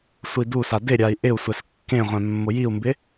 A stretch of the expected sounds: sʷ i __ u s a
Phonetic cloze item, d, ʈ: d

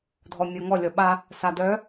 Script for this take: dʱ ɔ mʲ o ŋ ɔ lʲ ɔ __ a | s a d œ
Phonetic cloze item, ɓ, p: ɓ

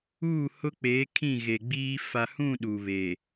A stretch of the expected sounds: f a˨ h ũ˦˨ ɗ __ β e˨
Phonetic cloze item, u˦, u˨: u˨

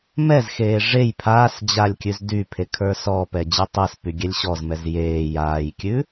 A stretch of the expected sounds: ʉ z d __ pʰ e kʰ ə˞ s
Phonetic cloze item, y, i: y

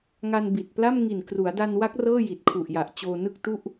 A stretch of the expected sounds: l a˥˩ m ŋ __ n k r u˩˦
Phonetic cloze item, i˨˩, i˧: i˨˩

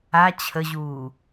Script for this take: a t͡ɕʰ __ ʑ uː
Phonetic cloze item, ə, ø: ə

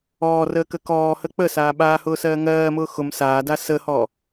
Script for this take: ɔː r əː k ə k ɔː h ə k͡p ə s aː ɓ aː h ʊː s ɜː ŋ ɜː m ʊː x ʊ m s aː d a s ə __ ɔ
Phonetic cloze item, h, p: h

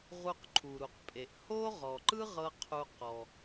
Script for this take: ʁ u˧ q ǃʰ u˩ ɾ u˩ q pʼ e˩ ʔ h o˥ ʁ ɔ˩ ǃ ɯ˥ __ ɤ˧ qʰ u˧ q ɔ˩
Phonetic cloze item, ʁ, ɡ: ʁ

